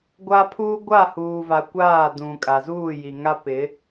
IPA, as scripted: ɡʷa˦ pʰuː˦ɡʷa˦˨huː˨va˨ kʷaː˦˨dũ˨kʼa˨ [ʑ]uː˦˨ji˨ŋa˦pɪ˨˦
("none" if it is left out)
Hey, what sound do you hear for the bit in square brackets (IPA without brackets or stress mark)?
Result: z